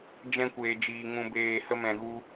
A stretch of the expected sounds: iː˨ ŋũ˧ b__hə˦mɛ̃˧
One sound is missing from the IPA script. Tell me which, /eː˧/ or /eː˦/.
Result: eː˧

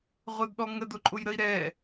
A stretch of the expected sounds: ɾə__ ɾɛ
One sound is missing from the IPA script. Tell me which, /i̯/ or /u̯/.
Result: i̯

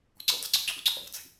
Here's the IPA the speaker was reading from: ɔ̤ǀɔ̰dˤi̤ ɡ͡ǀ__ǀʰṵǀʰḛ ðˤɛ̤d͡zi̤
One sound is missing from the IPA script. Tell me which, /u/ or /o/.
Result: u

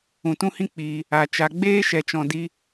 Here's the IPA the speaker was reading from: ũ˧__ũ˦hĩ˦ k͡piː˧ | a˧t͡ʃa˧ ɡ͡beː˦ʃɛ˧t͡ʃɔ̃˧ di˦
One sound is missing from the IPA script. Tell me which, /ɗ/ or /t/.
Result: t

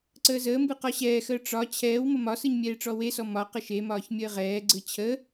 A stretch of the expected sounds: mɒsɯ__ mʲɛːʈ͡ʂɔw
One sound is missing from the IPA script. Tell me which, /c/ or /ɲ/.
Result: ɲ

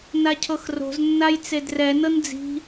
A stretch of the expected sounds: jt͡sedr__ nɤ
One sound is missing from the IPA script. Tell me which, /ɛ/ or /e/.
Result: ɛ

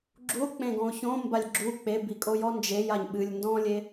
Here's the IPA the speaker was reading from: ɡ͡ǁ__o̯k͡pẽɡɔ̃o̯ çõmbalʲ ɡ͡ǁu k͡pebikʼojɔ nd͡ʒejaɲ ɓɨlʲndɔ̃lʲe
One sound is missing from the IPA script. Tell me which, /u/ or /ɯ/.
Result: u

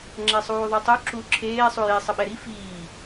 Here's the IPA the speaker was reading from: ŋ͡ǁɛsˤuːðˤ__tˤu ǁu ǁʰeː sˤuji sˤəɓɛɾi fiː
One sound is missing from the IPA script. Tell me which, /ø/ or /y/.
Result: ø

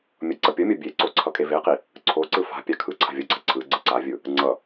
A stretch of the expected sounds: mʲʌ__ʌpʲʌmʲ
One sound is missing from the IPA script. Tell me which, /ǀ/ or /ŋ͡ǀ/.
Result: ǀ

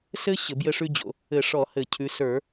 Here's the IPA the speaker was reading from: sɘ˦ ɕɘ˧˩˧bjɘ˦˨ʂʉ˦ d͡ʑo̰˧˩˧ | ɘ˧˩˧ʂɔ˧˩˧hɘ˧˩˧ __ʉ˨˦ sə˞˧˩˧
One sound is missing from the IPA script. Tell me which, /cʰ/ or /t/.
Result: cʰ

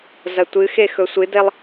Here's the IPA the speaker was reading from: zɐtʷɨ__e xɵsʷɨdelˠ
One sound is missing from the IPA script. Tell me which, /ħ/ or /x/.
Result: x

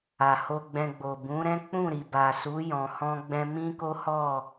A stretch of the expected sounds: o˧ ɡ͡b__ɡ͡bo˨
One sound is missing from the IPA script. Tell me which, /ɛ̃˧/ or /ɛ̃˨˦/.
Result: ɛ̃˧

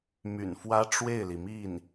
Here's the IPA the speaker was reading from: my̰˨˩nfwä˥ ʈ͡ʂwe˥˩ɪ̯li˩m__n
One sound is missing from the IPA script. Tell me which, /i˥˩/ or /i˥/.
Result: i˥˩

